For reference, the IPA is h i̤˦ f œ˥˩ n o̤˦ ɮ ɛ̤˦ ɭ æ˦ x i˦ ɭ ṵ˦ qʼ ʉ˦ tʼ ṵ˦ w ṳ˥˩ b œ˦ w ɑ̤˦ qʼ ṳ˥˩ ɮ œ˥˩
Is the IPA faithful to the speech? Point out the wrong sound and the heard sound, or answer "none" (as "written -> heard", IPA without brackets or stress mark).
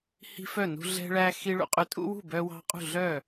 o̤˦ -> ṳ˦